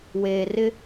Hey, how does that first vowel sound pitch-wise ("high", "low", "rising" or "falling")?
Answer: low